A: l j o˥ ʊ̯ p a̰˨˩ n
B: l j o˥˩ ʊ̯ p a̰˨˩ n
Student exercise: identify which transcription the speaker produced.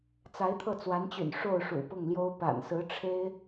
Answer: A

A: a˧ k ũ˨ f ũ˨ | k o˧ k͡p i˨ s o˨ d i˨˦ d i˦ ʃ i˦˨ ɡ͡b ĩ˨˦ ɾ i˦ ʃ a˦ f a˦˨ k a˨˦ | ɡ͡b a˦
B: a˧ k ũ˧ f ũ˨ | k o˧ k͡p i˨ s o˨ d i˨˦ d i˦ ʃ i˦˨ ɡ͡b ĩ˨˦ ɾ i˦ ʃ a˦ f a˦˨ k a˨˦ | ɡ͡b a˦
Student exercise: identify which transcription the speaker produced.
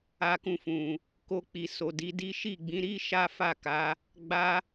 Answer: B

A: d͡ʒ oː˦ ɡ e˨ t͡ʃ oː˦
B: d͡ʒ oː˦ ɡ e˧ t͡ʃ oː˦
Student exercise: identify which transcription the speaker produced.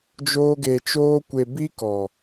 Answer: B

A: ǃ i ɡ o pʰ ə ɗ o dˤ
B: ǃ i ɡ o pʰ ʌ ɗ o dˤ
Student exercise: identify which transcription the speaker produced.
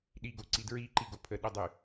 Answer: A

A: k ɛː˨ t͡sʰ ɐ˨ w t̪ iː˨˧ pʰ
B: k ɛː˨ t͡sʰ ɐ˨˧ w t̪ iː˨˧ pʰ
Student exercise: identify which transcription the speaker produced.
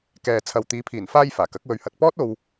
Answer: A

